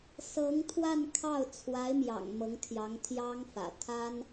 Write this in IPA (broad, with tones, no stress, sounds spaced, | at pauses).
s ɤ˧˥ ŋ t̪ʰ w a˥˧ n kʰ ɑ˥˩ ʊ̯ t͡sʰ w a˧˥ ɪ̯ m j ɑ̰˨˩ ŋ m ɤ˧˥ ŋ t̪ʰ j ɑ˧˥ ŋ t̪ʰ j ɑ˥ ŋ f ä̰˨˩ t̪ʰ a˥ n